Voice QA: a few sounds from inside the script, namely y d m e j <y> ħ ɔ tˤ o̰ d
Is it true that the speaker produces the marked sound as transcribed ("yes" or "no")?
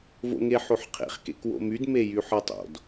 yes